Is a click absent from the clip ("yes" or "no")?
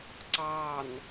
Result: no